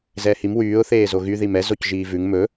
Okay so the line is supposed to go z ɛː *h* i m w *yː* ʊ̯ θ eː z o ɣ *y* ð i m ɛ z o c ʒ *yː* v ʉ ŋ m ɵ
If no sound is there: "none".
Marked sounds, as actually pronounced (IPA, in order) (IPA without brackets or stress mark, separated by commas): h, yː, y, iː